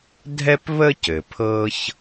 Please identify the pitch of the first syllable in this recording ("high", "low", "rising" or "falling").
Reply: high